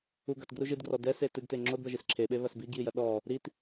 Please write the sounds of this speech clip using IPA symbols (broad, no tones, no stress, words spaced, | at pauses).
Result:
u ɡɐt ɡruʒɨdɡrɔ dɛse tɨɡte ŋ͡ǁodbɐʒis ǁʰeɓe βɐsbiɡjijɐ ɗɔ | ɾit